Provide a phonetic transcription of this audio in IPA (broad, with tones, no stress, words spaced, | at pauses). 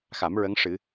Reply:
xa˨˩˦m ɹə˧˥ŋʂɨ˨˩˦